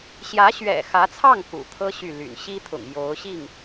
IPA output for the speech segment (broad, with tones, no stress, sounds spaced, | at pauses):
ɕ j ä˧˥ ɕ ɥ ɛ̰˨˩ x ä˧˥ t͡sʰ ɑ˥˩ ŋ k ṵ˨˩ t̪ʰ ɤ˥ ɕ y˥˩ l y̰˨˩ n ɕ i˥ t̪ʰ ʊ̰˨˩ ŋ j o˧˥ ʊ̯ ɕ i˥˩ ŋ